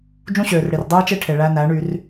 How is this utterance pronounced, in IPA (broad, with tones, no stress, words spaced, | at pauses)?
d͡ʒũ˦ɕøː˨rɽi˨r dˤɯː˦t͡ʃe˦ʈʰe˨ ɭæ˧næ˨˦ɳy˧r